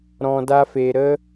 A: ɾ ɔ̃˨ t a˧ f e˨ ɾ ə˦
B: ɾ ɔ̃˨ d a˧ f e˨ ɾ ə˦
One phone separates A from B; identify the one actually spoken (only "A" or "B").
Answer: B